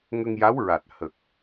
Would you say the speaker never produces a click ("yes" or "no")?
yes